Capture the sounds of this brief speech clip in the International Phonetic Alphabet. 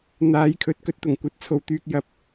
n̪ aː˨˧ j kʰ ɵ˨ t̚ k ɵ˧ t̚ t̪ ʊ˨˩ ŋ kʷ ɐ˧ t̚ t͡sʰ o˧ w t̪ yː˧ k̚ j ɐ˧ p̚

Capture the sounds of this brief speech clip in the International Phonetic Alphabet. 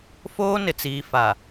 f oː˦ n ɪ˨ t͡s iː˨ f a˨

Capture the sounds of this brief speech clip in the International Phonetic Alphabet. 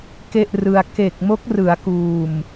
k e˥˩ ʔ r ɯ˧ a̯ k e˨˩ k̚ m o˦˥ k̚ r ɯ˩˦ a̯ k uː˨˩ m

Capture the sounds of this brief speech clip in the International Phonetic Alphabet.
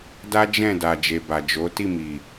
d a˦ d͡ʒ ɛ̃˦˨ d a˨ d͡ʒ e˨ b a˨ d͡ʒ o˨˦ t i˦˨ m i˨

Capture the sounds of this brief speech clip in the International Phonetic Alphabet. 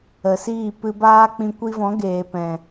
ə˨ s iː˦˨ p ɨ˧ b aː˦ k͡p ĩ˧ kʷ i˧ v ɔ̃˨˦ ɡ eː˨ p ɛ̃˨

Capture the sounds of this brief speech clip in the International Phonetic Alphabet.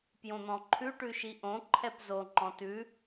p j õ n̪ ɔ̃ ǃʰ ʉ ʈ ʉ ʃ i ʔ õ ǃʰ ɛ p z o ŋ͡ǃ ɔ̃ t ʉ

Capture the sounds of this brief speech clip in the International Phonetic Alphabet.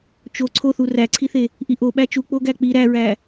t͡ʃ o ǀʰ o θ u r æ ǀʰ i θ e | ʔ i ʔ o ɓ æ t͡ʃ u k͡p o ɡ æ k͡p i ɾ æ ɹ æ

